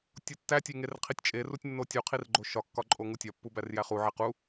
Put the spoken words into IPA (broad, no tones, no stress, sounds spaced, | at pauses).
tʲ o tː æ tʲ e ŋ e r qʰ i tʲ t͡ʃʼ e r u tʲ nː o tʲ u qʰ i r ɡ͡ǃ o ʃ ɒ kː ɒ ǃʼ o ŋ u tʲ ɒ pː u b æ r j æ χ u ʕ e q u